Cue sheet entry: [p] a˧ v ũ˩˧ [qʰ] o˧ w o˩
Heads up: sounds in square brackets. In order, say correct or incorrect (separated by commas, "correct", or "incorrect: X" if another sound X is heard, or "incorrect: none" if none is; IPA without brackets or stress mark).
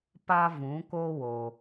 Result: correct, incorrect: k